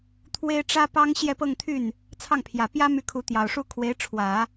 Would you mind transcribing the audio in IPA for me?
t̪ʰ w e˥ ɪ̯ ʈ͡ʂ ä˥ p ɑ˥ ŋ ɕ j ɛ˥˧ p ɤ˥˧ ŋ t̪ʰ y˥˩ n | t͡sʰ ɑ˥˩ ŋ pʰ j ä˨˩ p j ä˥ m y˥˩ kʰ u˧˥ t̪ j ɑ˨˩ ʊ̯ ʂ u˥ kʰ w e˧˥ ɪ̯ ʈ͡ʂʰ w ä˨˩˦

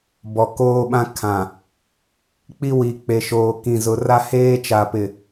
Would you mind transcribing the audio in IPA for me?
b ɔ˨ k oː˦ ɓ ã˦ kʰ ã˨ | k͡p i˦ w i˨ k͡p e˨ ʃ oː˨ k ĩ˨ z ʊ˨ r a˦ h eː˦ t͡ʃ a˨ p ɪ˨

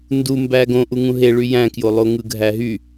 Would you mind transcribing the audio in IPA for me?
n d u m b æ ɡ õ ʔ u ŋ ũ ɦ e ɭ y j æ̃ k j o lˠ o ŋ ɯ ɡʱ æ ɦ y

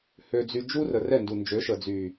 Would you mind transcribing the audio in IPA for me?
h ø˨ d͡z y˨ d͡ʒ u˦ r ə˨ r ɛ˦˨ n d u˨ n d͡ʒ ø˨˦ ʃ ə˨ d͡z y˨

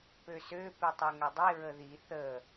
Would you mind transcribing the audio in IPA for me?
p ø s ø p i tˤ œ ŋ ɐ dˤ i ɹ ə ð i θ ə

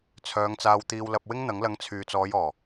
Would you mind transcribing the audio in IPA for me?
t͡sʰ œː˨˧ ŋ t͡s aː˧ w t̪ iː˧ w l ɐ˧ p̚ w ɪ˥ ŋ n̪ ɐ˨˥ ŋ l ɐ˨˥ ŋ t͡sʰ yː˨ t͡s ɔː˨˧ j ɔː˨˩

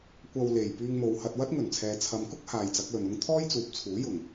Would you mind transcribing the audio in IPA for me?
kʷ ɐ˧ w l e˨˩ j p yː˧ ŋ m o˨ w h ɐ˧ t̚ w ɐ˥ t̚ ŋ ɵ˨˩ n t͡sʰ ɛː˨ t͡sʰ ɐ˨ m k ʊ˥ k̚ h aː˨ j t͡s ɐ˨˥ k̚ l ɵ˨ n ʊ˥ ŋ t̪ʰ ɔː˥ j t͡s uː˨ p̚ t͡sʰ uː˨˥ j ʊ˨˩ ŋ

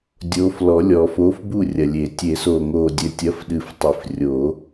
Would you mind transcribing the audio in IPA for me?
dʲ oː˨˥ f l ɔ˨˩˦ lʲ ɔ˨˩˦ f oː˨˥ f b u˥˩ rʲ ɐ˨˩ lʲ e˨˩˦ tʲ e˨˩˦ s oː˨˩ ŋ oː˨˩ dʲ ɘ˨˩ tʲ ɐ˨˥ f ɗ ɨ˨˩˦ f tˤ i˨˩ f rʲ oː˨˩˦

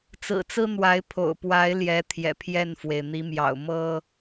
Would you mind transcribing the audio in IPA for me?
t͡s ɹ̩˨˩ t͡s ɹ̩˦ n̪ w a˨˦ ɪ̯ pʰ o̰˨˩ ʊ̯ p w a˨˦ ɪ̯ l j ɛ˨˦ t̪ʰ j ɛ̰˨˩ pʰ j ɛ˥˨ n f w e˩ ɪ̯ n̪ i˨˦ m j ɑ̰˨˩ ʊ̯ m ɤ˦

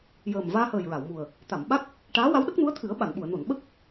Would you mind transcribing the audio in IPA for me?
j əː˨˩ m v aː˧ h əː˨˩ j ɹ a˨˩˨ w m u˨˩ ə̯ | t̪ a˨˩˨ m ɓ a˦˥ k̚ | ʈ aː˧˥ w a˧˥ w ɗ ə˦˥ k̚ n u˧˥ ə̯ t̪ʰ ɨ˨˩˦ ə̯ ɓ a˨˩˨ n ɓ u˨˩˨ ə̯ n o˨˩˨ n ɓ ə˦˥ k̚

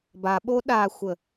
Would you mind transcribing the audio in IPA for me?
b a ɓ o ɗ a xʷ ə

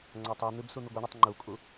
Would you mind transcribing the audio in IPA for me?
ŋ͡ǀ a tˤ ʉ n̪ ɨ b s u n̪ ɨ ɡʷ ɨ ɳ ʉ tˤ ŋ͡ǃ u kʼ u

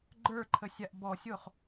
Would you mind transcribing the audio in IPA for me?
ɡ͡ǃ ə˞ ǃʰ ə sʲ a ʔ b ɔ sʲ o χ

